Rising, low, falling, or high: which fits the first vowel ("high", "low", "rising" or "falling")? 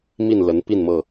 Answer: falling